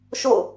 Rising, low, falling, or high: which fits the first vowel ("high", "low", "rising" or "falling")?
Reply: falling